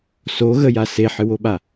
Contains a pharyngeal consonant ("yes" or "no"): yes